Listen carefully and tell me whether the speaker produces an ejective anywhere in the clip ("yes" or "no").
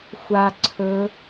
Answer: no